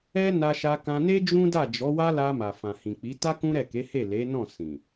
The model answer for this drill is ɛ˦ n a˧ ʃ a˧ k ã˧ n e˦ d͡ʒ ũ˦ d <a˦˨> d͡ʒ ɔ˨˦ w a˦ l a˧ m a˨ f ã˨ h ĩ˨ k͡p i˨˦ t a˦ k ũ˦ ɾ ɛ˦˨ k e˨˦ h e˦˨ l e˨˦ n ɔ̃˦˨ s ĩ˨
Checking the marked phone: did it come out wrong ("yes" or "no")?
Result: no